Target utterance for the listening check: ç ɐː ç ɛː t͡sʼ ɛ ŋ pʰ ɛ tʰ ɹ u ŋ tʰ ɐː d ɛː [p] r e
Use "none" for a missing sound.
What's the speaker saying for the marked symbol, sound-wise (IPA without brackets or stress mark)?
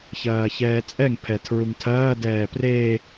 p